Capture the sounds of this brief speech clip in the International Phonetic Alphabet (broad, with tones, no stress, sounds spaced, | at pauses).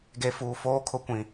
ɡ e˦ f uː˦ f oː˦ kʰ ʊ˦ kʷ ĩ˦